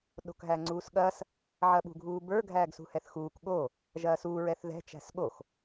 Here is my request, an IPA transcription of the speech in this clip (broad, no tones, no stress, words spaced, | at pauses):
ɗo̤kɦæŋ͡ǀuːsɠɐs | ʕɐɓṳɡʱuːbə˞ ɡʱæːɡsṳhɛθxuːk ɠo | ʒɐːsuː ɹɛθðɛ̤ t͡ʃæ̤sɠox